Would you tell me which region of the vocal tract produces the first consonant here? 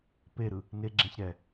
lips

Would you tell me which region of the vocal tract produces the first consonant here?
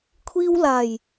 velum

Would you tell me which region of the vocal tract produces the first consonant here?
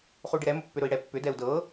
uvula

